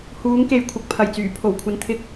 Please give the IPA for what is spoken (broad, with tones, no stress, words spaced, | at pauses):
huː˨˧ŋke˨j kʷʰɐ˨k̚pʰɐ˨˩jt͡syː˨˩ pʰo˨˩wkʷʰɐ˨nt̪ʰɪ˧k̚